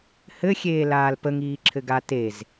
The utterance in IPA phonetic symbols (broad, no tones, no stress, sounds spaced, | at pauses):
h ɘ xʲ eː l aː l p ə ŋ iː ǁʰ ɘ ɡ a t e z